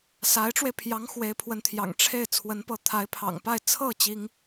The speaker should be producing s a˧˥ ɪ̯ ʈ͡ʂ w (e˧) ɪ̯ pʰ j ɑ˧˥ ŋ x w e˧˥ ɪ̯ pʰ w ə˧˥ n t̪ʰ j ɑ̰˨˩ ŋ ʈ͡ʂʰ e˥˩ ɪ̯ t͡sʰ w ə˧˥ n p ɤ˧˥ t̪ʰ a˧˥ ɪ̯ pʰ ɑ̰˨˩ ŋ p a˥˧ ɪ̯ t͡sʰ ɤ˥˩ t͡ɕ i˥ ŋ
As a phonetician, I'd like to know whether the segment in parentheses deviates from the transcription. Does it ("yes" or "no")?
no